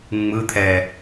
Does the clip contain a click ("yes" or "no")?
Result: no